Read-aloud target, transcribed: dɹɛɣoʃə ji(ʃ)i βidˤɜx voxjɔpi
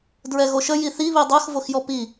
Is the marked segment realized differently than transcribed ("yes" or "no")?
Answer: yes